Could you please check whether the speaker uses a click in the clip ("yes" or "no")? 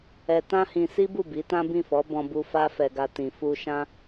no